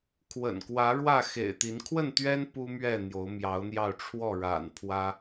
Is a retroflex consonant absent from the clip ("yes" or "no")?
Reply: no